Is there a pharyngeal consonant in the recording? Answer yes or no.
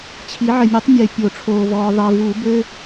yes